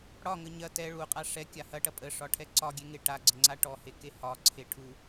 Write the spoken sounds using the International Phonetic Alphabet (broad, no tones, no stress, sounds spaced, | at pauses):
ɽ ɒ ŋ ə ɲ ɐ t ɛ ɭ u qʼ a ʂ ɛ kʲ a h ɐ ʈ ɐ pʼ ə ʂ ɒ ʈʰ ɛ ǀ ɒ ɡʲ e ŋ e ʈ a ɡ͡ǀ ə ŋ͡ǀ a ʈ ɔ h e k e h ɒ ǀʰ e ʈʰ u